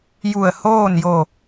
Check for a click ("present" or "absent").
absent